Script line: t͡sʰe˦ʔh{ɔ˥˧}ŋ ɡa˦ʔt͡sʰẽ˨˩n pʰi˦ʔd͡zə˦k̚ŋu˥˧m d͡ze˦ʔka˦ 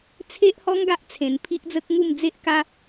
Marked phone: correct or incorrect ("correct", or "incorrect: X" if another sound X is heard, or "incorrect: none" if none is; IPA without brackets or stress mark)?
incorrect: ɔ˦